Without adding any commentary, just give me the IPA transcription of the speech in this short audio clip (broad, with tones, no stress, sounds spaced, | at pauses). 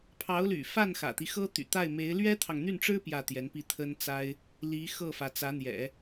pʰ ɑ˧˥ ʊ̯ l y̰˨˩ f a˥˩ n x ä̰˨˩ t̪ i˦ x ɤ˥ t̪ y̰˨˩ t̪ a˥˩ ɪ̯ m e˧˥ ɪ̯ l ɥ ɛ˥ t̪ʰ ɑ˨ ŋ n̪ y˥˩ n ʈ͡ʂ ɻ̩˥ p j ä˥˩ t̪ j ɛ˧˥ n p i˥˩ t̪ʰ ə˥ n t͡s a˥ ɪ̯ | l i˧˥ x ɤ˥˩ f ä˩ t͡s ä˧˥ n̪ j ɛ̰˨˩˦